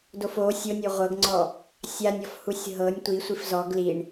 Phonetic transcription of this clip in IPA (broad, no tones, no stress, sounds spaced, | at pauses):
d o f o sʲ o nʲ o ʁʷ ɤ ɡ ŋ͡ǀ ɔ | sʲ a nʲ ɔ f h u sʲ ɦ ɤ nʲ tʷ i sʷ i f z ɔ ɡ l i ɳ